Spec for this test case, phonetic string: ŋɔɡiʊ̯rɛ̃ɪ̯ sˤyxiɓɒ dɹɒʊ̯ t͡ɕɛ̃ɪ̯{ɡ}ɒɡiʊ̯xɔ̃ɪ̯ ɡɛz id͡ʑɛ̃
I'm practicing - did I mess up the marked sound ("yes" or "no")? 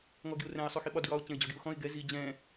yes